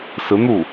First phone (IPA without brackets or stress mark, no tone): s